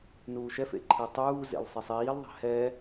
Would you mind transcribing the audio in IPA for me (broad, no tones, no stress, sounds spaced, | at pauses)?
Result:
n uː ʃ ɛ f ḛ ǃʰ e tˤ uː z ḛ l sˤ i sˤ iː l ðˤ ɛ̤ h ɛ